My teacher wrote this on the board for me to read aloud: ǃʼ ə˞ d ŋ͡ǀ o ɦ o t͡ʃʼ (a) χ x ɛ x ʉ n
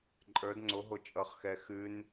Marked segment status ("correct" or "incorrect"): incorrect